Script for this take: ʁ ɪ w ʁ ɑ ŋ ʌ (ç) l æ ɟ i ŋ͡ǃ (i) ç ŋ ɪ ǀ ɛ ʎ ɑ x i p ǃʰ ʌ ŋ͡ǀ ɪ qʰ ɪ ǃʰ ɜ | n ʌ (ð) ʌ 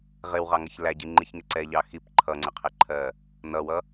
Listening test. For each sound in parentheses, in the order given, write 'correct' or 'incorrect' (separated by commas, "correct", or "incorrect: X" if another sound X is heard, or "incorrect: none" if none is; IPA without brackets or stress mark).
correct, correct, incorrect: w